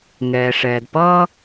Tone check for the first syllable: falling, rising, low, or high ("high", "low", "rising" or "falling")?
low